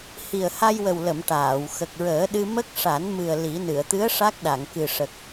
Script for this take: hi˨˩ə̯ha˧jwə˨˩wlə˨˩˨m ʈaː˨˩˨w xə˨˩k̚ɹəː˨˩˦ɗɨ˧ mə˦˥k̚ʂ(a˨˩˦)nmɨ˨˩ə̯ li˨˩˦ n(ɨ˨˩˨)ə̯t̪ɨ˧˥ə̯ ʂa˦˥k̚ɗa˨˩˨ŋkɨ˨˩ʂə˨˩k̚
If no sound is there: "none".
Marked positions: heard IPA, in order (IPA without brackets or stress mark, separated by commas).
a˨˩˦, ɨ˨˩˨